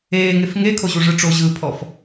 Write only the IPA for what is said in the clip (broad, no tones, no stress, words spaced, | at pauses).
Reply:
eːŋef ŋekʰoʑuʐɯ ʈ͡ʂoʑɯːpʰɔf